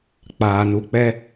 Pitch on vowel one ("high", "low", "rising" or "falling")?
low